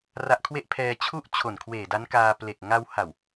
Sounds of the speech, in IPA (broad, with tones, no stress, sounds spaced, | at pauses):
r a˦˥ ʔ kʰ w e˥˩ ʔ pʰ ɛː˧ t͡ɕʰ u˥˩ ʔ t͡ɕʰ o˨˩ n kʰ w eː˨˩ d a˦˥ n k aː˧ p l e˨˩ k̚ ŋ a˧ w h a˨˩ w